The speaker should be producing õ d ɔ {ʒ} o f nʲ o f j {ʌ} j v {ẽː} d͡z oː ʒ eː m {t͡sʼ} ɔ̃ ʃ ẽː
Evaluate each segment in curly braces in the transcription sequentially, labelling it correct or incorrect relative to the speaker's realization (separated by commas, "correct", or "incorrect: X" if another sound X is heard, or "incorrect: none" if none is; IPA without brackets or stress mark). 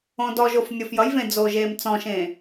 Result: correct, correct, incorrect: ẽ, incorrect: t͡s